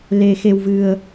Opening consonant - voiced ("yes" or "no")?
yes